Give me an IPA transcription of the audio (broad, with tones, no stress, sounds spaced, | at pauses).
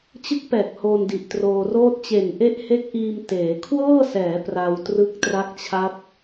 t͡ɕ ɯ˦˥ k̚ p ɛː˨˩ k̚ h oː˧ n d i˨˩ ʔ t r oː˧ r oː˥˩ t̚ t͡ɕ e˨˩ n ʔ e˦˥ ʔ h e˦˥ k̚ ʔ iː˧ m t eː˩˦ kʰ w ɤː˥˩ s ɛː˩˦ p r a˧ w t r ɯ˦˥ k̚ t r a˦˥ k̚ t͡ɕʰ a˦˥ p̚